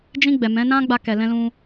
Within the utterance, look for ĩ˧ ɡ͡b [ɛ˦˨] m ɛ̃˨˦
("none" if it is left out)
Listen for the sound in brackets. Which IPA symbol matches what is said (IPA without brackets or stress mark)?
ɛ˨